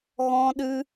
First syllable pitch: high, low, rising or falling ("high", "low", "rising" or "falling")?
high